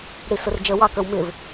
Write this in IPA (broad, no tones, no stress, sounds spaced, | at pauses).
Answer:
ɽ i s ʊ r d͡ʒ ə w ɑ k ə˞ w m ɪ v